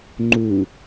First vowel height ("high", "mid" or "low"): high